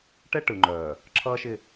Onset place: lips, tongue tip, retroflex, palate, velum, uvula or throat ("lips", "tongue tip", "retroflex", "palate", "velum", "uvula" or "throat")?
retroflex